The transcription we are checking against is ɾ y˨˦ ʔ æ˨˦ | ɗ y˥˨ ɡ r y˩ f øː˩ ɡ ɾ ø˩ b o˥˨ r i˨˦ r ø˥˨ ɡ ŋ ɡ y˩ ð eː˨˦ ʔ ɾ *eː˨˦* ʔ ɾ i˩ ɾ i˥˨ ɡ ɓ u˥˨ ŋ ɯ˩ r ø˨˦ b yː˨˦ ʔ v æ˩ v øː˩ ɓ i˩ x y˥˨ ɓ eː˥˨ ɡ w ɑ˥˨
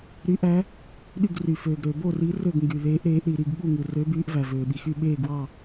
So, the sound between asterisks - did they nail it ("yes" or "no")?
yes